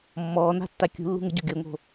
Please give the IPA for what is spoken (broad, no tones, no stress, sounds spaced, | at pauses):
mː ɔː n a̤ tː a kʲ ṳ lː ṳ ŋ ə ɟ o ɡʲ o ŋ o̤